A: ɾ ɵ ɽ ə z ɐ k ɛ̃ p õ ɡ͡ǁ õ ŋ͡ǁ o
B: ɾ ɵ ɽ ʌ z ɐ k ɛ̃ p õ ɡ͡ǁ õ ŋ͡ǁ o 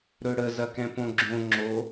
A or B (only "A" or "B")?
A